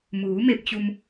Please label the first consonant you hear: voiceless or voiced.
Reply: voiced